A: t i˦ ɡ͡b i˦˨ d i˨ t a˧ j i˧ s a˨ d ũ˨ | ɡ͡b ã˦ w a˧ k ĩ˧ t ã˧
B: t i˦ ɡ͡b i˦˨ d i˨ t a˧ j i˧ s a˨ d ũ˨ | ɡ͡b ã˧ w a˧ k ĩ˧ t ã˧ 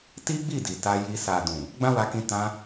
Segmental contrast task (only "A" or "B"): A